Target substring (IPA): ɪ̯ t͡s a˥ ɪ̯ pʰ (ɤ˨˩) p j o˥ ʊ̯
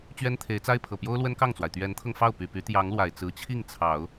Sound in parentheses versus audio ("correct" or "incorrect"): correct